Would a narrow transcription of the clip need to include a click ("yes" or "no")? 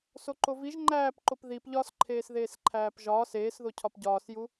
yes